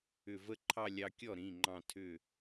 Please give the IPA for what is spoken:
ʏ˧˩ v ə˥˧ ǃʰ ɑ˥˧ lʲ ɑ˧ kʲ ɔ˥˩ ɾ ĩ˩˧˩ ŋ͡ǃ ɑ̃˧˩ tʰ ʏ˧˩

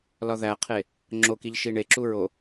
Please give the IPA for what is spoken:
l ɒ ð æ qʰ e | ŋ͡ǁ o k i ʎ ʃ i ɳ e ǁ u ɹ o

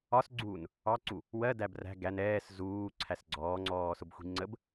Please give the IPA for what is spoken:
ɒ s ɡ͡ǀ uː n | ɑ ǀ u | w ɜ d æ b r æ̤ ɡ æ n ɛː s z uː ǀʰ æ s ɡ͡ǀ ɔː ŋ͡ǀ ɔː s ʊ b xʷ i̤ ŋ͡ǀ ə b

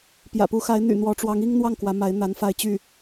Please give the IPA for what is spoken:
p j ä̰˨˩ p u˧˥ x a˧˥ ɪ̯ n̪ y̰˨˩ n̪ w ɔ˧˥ ʈ͡ʂ w ɑ˧˥ ŋ i˥ ŋ n̪ w ɑ˥˩ ŋ k w ä˧˥ m a˧˥ ɪ̯ n̪ a˧˥ n f a˥˧ ɪ̯ t͡ɕ y˥˩

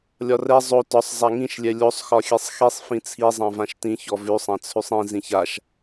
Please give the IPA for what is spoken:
lʲ ɒ r ɛ zˤ o t ɒ sˤ zˤ a ŋ ĩ ʃ lʲ ɛ lʲ o sˤ x ɒ xʲ ɛ sˤ x i sˤ f ĩ t͡sʰ i zˤ ã v ã ʃ t ĩ ç ɔ v ʉ sˤ ã t͡sʰ ʉ sˤ ĩ z ĩ ç a ʃ

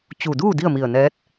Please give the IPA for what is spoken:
t͡ɕ u˧˩ d uː˥˨ d i˥˨ ə̯ m i˧˩ ə̯ n ɛː˧˥ t̚

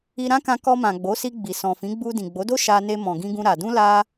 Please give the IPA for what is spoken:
i˧ ɾ ã˦ k ã˧ k ɔ˧ m ã˨ ɡ͡b o˨˦ s i˧ ɡ͡b i˨ s ɔ̃˨ f ĩ˨˦ ɡ͡b u˧ d ĩ˨ ɡ͡b o˨˦ d o˦ ʃ a˧ n e˧ m ɔ̃˨ ɡ ĩ˧ ɡ ũ˧ ɾ a˧ d ũ˦ l a˦

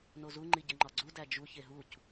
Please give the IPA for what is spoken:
n o z u ŋ͡ǃ i ɟ e ŋ͡ǃ ɒ ɡ͡ǀ u d æ d͡ʒ u ç e ɦ u c

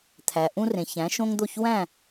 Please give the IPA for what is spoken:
t̪ʰ æ˩ ʔ ũ˥ r ẽ˩ ç æ̃˩˥ ʃ õ˥ ŋ d̪ o˥˩ ç w æ̃˥˩

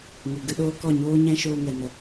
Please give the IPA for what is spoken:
ŋ ɨ˨ ɡ ɨ˧ ɗ oː˦ k ɔ˦˨ ɲ oː˦ ɲ ɛ̃˦ ʃ oː˦ ŋ ɛ˧ n ə˧

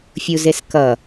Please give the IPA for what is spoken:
fʲ u z e s k ʌ

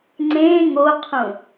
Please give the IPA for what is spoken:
ŋ͡ǀ ẽ ŋ o qʰ ũ

